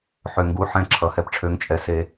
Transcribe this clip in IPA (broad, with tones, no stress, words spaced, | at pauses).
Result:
ħø˨˩ŋɡu˨˥ ħɛ̃˧ ǁʰʌ˨˩hɛ˧pʈ͡ʂʰø˨˥ŋt͡ʃʼɛ˨˥ se˧